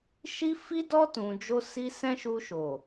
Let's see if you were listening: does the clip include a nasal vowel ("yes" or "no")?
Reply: yes